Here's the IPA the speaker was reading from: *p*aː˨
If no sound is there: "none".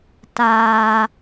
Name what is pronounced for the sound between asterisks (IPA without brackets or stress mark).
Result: t